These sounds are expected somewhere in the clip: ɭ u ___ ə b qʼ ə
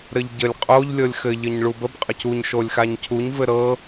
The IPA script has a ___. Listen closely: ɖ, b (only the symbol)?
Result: b